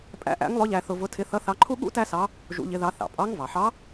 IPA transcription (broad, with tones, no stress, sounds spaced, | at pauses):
pʼ æ̰˧˥ ʔ æ̰˧˥ ŋ lˠ ʊ˧˥ ʎ æ˧ θ ʊ˧ v ʊ˧˥ tʰ ɪ˧˥ θ ʌ˧˥ θ ɑ˧˥ ǃʰ u˥ ɠ ṵ˥ t æ˥ s ɑ˧˥ | ʒ ṵ˧˥ ʎ ɪ˧˥ ð ɑ˧˥ θ ɑ̰˩ pʼ ɑ˧˥ ŋ v ɑ˩ ħ ɑ˧˥